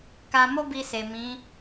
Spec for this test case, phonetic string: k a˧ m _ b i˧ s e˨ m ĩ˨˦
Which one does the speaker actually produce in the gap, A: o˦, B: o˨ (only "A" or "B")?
A